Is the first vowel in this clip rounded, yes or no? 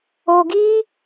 yes